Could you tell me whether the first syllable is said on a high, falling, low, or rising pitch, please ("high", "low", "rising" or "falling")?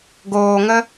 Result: low